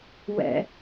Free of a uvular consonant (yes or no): yes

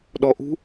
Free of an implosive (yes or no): no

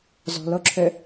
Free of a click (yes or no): no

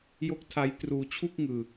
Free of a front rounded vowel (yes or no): yes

